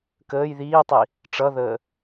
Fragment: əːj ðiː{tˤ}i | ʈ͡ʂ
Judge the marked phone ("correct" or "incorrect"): correct